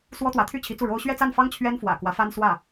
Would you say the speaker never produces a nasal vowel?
yes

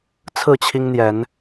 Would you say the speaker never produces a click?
yes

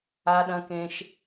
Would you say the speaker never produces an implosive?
no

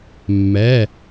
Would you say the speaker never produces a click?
yes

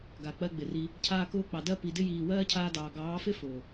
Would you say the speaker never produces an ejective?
yes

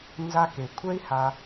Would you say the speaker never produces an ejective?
yes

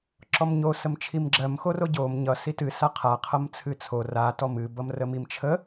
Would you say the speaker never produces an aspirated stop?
no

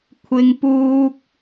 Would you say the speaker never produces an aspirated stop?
no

